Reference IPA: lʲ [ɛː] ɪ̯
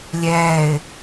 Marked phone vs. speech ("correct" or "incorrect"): correct